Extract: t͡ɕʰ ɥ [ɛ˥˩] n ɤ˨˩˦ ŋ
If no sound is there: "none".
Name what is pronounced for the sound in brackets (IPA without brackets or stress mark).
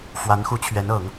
ɛ˧˥